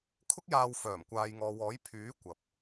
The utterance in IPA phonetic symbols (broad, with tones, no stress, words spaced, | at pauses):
kʰʊ˥k̚jaː˧wfœː˨˩m kʷaː˨jŋɔː˨wɔː˨˥j pʰyː˨˥ kʷɐ˨p̚